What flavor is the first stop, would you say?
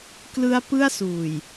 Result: plain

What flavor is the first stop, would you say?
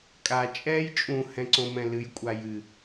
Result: ejective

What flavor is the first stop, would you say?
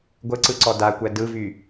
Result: plain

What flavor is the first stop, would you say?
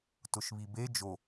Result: plain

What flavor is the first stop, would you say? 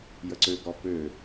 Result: click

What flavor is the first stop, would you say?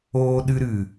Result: implosive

